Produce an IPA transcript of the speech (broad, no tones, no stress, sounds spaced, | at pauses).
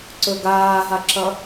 ǀ ɵ ɡ aː ɦ a ǁ ɐ